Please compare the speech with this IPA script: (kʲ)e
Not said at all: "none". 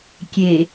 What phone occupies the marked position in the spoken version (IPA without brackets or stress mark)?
kʲ